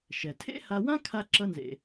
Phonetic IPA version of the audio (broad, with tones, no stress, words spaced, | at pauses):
ʃɛ˩ tʰḛ˥ha˧wã˥ kʰa˥ǁʌ˥nzḛ˧